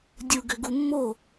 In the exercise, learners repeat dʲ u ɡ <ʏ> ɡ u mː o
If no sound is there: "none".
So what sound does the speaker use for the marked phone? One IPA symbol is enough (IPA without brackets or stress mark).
ʏ